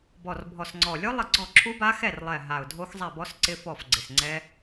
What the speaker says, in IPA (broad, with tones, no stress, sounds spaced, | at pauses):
b ɔ˨˩ r bʱ ɔ˨˩ s ŋ͡ǀ ɔ˨˩ lʲ o˦˥ lˠ ɪ˦˨ ɡ͡ǀ ɔ˦˨ ǁʰ u˦˥ b a˦˥ x ɛ˦˨ r lˠ ɛ˨˩ ɦ a˨˩ ʊ̯ dʱ o˦˥ x zˤ ɛ˦˨ b ɔ˦˥ s ǀ ɪ˦˥ f ɔ˦˨ f ɡ͡ǀ ɪ˨˩ s ŋ͡ǀ ɛ˦˥